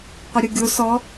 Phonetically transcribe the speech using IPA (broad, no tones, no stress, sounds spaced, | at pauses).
qʷ ɐ ɾʲ u ɡʲ o s ɔ